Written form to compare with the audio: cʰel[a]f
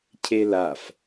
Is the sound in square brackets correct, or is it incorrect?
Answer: correct